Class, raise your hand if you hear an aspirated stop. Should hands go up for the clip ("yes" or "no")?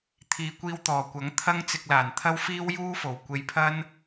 yes